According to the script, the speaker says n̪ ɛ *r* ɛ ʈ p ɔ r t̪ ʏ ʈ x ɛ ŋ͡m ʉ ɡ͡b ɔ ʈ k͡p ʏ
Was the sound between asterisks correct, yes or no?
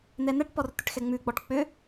no